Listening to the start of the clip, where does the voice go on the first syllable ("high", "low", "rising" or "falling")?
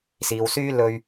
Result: low